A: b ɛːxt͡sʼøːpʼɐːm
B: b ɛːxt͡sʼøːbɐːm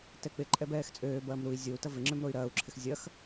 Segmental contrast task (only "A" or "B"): B